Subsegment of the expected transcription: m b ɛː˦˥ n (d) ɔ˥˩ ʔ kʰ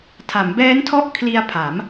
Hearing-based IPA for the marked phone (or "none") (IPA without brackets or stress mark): tʰ